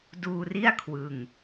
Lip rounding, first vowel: rounded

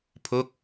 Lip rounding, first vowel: rounded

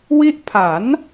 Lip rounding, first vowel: unrounded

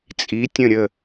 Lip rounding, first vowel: unrounded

